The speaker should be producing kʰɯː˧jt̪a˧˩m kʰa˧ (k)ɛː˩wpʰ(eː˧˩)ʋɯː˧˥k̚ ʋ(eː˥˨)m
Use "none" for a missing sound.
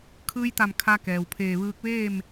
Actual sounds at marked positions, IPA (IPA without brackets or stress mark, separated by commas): k, eː˧˩, eː˥˨